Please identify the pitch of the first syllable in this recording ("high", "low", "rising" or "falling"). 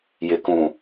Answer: low